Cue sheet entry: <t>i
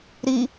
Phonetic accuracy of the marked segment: incorrect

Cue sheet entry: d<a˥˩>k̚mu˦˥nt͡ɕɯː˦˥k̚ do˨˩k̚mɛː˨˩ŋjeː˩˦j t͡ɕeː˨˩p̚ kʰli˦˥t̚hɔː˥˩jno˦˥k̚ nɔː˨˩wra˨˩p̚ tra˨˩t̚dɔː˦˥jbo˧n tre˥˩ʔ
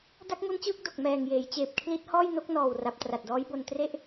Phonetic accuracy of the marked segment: correct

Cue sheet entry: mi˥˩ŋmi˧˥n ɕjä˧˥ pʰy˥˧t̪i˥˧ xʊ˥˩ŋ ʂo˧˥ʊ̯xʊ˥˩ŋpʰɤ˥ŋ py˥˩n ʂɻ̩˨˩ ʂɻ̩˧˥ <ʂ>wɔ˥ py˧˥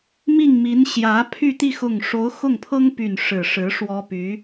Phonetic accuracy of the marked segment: correct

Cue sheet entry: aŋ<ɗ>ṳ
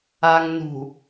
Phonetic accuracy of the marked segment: incorrect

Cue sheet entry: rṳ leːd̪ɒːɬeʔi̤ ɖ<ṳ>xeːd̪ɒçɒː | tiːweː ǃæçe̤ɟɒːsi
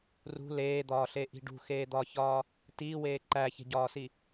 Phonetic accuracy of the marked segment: correct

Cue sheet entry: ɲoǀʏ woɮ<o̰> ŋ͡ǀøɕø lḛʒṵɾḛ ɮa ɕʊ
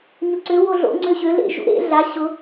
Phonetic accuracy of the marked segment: correct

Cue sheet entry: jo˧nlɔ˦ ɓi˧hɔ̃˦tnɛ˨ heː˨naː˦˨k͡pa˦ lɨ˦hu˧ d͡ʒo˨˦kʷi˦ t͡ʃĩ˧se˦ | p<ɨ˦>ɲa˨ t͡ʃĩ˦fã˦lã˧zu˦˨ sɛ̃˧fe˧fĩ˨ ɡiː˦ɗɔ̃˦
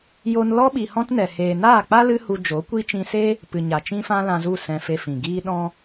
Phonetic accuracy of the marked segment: incorrect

